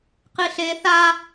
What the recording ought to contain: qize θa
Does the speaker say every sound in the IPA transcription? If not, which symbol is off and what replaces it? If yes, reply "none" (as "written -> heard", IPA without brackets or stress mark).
z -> ɬ